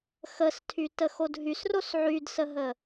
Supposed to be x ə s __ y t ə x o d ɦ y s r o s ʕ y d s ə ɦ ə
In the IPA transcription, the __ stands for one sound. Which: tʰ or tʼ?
tʰ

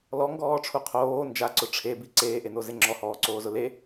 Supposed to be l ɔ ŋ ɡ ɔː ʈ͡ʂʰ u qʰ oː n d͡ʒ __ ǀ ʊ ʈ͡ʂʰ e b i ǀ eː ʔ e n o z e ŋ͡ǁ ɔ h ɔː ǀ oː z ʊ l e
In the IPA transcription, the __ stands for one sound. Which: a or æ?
a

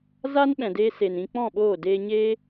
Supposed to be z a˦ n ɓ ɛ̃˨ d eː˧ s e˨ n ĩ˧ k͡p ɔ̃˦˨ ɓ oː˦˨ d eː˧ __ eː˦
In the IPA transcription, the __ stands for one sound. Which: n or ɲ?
ɲ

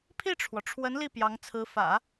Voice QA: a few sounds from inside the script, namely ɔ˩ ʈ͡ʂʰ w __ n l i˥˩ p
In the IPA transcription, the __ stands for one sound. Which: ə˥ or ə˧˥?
ə˧˥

